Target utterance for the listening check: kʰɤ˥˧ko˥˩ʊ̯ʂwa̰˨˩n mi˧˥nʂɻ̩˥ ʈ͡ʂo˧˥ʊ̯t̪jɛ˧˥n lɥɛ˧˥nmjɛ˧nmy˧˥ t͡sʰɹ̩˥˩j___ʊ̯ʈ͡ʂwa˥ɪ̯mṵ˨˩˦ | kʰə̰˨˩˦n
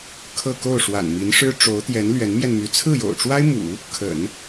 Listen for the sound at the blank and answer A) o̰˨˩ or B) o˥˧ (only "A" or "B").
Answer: A